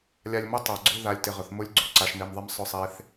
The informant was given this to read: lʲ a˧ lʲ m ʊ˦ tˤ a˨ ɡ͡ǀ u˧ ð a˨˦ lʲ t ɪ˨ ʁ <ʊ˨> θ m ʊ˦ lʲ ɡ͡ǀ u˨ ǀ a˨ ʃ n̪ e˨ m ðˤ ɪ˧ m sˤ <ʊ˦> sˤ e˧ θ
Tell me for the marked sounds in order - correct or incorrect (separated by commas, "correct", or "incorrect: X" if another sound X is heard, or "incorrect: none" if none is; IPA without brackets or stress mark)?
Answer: correct, incorrect: ʊ˧